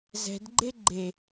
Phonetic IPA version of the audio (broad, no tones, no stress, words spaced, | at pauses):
zɛ̤dɡ͡ǃe ɡ͡ǃe